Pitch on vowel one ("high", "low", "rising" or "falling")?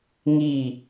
falling